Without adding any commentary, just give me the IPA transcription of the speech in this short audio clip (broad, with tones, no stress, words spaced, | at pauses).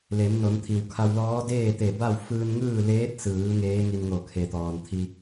le˩˧mno˩˧nt̪ʰi˩w kʰa˧wlɔː˧˥ deː˥˨t̪e˧˩ ba˥˨w fɯː˧nŋɯː˥˨ leː˧˥t̚sɯː˩˧ ŋeː˧˥ŋi˧nŋo˧˩ kʰe˩t̪ɔː˩nt̪ʰi˧